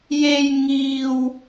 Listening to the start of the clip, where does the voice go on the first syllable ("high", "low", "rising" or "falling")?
high